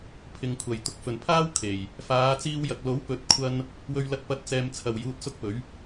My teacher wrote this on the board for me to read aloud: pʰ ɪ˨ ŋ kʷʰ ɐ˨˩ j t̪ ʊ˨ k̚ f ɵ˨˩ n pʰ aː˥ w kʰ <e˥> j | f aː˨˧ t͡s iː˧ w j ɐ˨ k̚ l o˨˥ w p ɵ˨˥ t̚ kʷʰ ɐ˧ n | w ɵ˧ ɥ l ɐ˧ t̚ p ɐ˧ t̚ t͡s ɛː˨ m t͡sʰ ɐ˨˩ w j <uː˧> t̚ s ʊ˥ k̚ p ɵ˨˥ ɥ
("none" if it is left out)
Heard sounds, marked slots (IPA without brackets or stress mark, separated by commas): e˨˩, uː˧